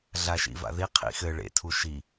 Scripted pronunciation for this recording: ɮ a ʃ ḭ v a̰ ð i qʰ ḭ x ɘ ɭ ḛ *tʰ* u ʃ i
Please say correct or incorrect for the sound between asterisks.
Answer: correct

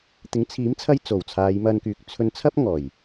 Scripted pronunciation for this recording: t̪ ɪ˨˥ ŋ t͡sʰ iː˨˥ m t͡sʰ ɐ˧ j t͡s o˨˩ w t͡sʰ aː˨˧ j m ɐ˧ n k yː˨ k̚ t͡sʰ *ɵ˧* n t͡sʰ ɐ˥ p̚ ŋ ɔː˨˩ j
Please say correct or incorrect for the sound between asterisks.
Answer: correct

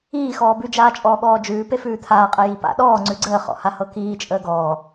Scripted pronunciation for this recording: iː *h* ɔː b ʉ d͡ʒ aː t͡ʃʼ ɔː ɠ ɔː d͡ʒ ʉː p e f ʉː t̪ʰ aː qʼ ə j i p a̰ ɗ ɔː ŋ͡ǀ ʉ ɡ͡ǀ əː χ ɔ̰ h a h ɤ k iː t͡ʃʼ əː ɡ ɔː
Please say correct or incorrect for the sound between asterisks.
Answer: incorrect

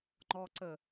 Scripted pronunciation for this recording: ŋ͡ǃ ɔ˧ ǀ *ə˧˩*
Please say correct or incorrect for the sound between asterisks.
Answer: correct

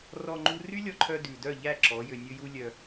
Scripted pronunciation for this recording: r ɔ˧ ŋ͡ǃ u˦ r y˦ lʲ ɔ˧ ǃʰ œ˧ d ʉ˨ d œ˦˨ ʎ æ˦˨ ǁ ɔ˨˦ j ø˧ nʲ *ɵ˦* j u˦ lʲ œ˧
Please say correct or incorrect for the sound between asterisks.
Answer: correct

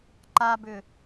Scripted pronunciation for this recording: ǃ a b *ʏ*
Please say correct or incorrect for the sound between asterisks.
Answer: correct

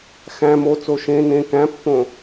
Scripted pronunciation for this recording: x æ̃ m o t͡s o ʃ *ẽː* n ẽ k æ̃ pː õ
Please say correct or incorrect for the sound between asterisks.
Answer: incorrect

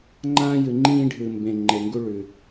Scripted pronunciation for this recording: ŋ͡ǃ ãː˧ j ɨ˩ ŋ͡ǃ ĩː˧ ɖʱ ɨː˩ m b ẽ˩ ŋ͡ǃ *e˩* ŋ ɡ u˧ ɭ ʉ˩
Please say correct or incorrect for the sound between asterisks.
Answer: correct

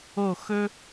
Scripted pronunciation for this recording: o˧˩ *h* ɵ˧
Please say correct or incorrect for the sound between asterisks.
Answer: incorrect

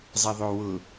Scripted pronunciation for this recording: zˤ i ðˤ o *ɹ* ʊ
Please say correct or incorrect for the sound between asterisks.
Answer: incorrect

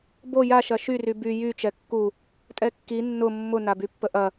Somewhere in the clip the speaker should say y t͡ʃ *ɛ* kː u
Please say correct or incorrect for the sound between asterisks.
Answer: correct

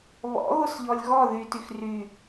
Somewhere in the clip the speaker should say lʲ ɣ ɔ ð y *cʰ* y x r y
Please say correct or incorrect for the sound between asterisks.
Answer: incorrect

